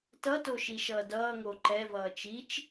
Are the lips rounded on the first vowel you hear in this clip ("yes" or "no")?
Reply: no